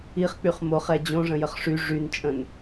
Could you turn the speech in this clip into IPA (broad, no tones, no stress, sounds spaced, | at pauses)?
i χ k͡p y χ m o χ ɛ d͡ʑ õ ʐ ə̃ j ə χ ʂ y ʐ y n t͡ʃʼ ə̃ n